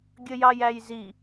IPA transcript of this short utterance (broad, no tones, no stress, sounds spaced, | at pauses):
ɡʲ ə j ɑ j æ j z i